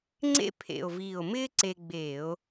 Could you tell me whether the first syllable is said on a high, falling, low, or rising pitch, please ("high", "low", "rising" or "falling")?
high